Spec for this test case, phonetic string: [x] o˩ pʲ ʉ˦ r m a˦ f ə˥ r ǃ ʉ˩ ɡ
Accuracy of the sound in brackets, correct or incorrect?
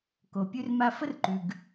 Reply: incorrect